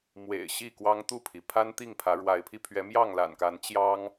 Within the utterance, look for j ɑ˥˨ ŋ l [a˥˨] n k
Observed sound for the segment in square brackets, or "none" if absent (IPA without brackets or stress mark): a̰˨˩